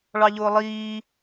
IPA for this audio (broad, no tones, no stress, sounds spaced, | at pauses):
ɭ ɑ ʎ ʊː lˠ iː